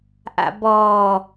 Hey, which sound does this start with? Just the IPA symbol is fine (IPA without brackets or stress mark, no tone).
ʔ